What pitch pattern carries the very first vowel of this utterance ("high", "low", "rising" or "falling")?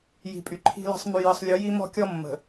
low